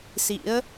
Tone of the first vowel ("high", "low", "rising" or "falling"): rising